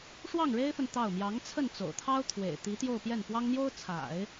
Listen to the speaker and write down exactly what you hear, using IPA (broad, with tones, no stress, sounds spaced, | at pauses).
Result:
ʂ w ɑ˥˩ ŋ ɻ e˥ ɪ̯ f ə˨ n t̪ ɑ˥˩ ʊ̯ m j ɑ˧˥ ŋ t͡sʰ ə˥˩ n t͡s o̰˨˩ ʊ̯ t̪ʰ ɑ˥ ʊ̯ t̪ʰ w ḛ˨˩ ɪ̯ t̪ i˧˥ t̪ j o˥˧ ʊ̯ p j ɛ˥˩ n p w ɑ˥ ŋ n̪ j o˥ ʊ̯ t͡sʰ a̰˨˩˦ ɪ̯